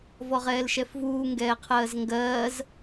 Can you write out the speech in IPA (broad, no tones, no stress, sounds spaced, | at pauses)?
v ɔ ʁ ɛː l ʃ ɛ f v uː ŋ ɡ ɛː qʰ ɜː z ŋ ɡ ɜː z